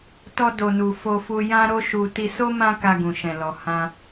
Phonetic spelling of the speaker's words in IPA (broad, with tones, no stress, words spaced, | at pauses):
tɔ˧do˨nu˨ fo˧fu˧ jã˦ɾo˦ʃu˧ ti˧so˦ mã˦ka˧ɡũ˨ʃɛ̃˨ lɔ˨ hã˧